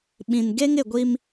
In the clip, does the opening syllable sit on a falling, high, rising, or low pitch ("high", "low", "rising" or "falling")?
low